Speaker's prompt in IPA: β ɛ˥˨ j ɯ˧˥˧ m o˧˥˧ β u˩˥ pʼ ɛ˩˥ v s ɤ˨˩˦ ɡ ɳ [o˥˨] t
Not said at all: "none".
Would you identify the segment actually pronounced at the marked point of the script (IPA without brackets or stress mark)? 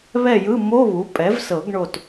o˥˨